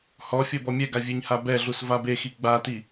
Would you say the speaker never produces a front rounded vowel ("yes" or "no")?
yes